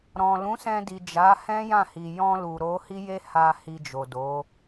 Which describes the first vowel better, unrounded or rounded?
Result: rounded